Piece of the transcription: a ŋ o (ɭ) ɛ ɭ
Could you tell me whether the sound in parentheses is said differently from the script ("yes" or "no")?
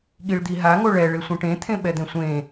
no